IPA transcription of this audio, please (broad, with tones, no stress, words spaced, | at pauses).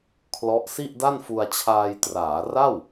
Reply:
kʰlɔ˦˥ʔ si˥˩ʔda˥˩nfu˧a̯t͡ɕʰaː˧j traː˩˦ra˥˩w